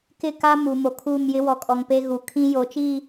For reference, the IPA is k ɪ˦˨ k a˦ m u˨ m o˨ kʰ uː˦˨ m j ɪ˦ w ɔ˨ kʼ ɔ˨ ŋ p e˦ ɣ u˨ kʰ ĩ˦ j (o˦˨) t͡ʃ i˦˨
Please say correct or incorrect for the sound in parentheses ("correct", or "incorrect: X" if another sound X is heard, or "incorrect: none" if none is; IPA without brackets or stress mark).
incorrect: o˨